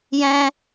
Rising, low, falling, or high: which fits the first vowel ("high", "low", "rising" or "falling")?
high